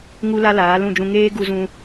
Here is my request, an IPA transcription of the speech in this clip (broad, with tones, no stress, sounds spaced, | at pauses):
ŋ u˦ l a˦ l aː˨˦ l ũ˦˨ d͡ʒ ũ˧ ŋ eː˦ ɡ u˧ z ũ˧